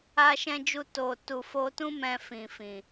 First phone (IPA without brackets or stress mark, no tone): a